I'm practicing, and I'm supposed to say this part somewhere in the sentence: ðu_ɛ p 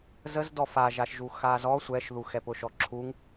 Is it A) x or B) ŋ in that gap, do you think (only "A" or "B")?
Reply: A